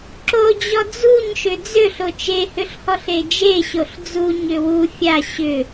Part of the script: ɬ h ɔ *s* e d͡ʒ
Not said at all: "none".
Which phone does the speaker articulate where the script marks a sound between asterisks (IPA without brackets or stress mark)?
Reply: ɬ